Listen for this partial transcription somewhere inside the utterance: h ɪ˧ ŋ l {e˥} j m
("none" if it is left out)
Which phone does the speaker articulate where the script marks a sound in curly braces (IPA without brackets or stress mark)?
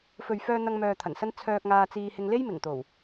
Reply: e˥